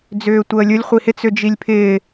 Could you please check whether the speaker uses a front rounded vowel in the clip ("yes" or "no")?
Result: yes